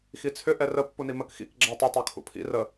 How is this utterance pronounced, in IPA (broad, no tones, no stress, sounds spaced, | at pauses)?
x i t͡sʰ ʏ ʔ ɛ r ə pː u n i m ə k x ḭ k ɡ͡ǁ a tˤ ʏ tˤ o kʰ ṵ pʰ ḭ r ə